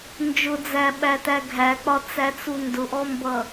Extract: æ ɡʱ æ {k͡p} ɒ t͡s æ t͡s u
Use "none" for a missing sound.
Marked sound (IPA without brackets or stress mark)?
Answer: k͡p